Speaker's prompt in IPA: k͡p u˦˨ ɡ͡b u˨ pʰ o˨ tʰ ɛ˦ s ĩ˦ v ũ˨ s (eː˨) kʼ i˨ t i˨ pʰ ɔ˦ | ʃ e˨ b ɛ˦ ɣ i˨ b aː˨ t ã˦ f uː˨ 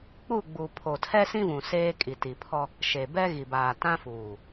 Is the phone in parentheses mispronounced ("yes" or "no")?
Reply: yes